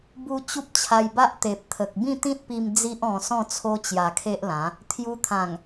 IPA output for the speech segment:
bu˦ t͡ɕu˦p̚t͡ɕʰa˧jba˦ʔ t̪e˨p̚t̪ʰə˨k̚ bĩ˥˧t̪ĩ˦t̚pi˧m d͡zi˦ʔɔ̃˧ sɔ̃˥˧t͡sʰo˦ t͡ɕja˧kʰe˦ʔlã˨˦ | t̪ʰju˧t̪ʰã˨˩ŋ

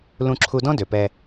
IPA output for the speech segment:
lũ˧ǁʰu˧dɔ̃˥ dø˩pɛ˧

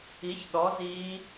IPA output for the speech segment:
i˨˥çɗɔ˨˥ ziː˦˥

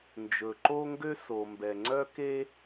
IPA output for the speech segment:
nd͡ʒɵ˩ǃo˥ŋɡø˥ so˩mbɛ˩ ŋ͡ǀœ˥ke˥

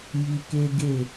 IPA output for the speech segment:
ji˧ke˦ ɡe˦˨

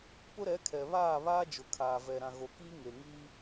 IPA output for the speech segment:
pʊ˦ɾɛ˨˦ kʰɛ˨βaː˦˨βaː˦ d͡ʒʊ˨kʰaː˨vɛ˨ ɾã˨ɣo˨kiː˦ ŋe˨ŋiː˦

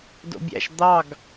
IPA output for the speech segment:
do̰bʲæ̰ʃ d̪ɑɡ

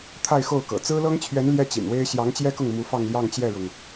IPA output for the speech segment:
t̪ʰa˥˧ɪ̯xo˥˩ʊ̯kɤ̰˨˩ t͡sɹ̩˥lɤ˥ŋt͡ɕʰɥɛ˧˥n ljɛ˥t͡ɕḭ˨˩nwe˥ɪ̯ ɕjɑ˧˥ŋt͡ɕjɛ˥kʊ˥˩ŋ mu˧˥fɑ˥˧ŋljɑ˥˧ŋ t͡ɕjɛ˥˩ɻʊ˩ŋ

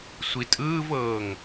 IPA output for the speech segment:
sʷitʼɯːvɤːŋ

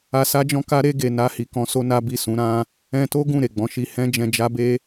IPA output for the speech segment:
a˧sa˦d͡ʒɔ̃˦ka˦ ɾe˧ɡe˨ na˧hi˨kɔ̃˧so˧ na˦bi˦˨sũ˨˦ ɾã˧ | ɛ̃˧to˦ ɡũ˦˨ ɾe˨ɡ͡bɔ̃˨˦ʃi˧ hɛ̃˦d͡ʒɛ̃˧d͡ʒa˦be˦

